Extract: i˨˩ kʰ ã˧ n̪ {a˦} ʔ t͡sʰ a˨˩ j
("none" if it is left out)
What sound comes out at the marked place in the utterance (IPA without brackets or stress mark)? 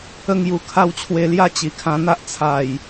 a˦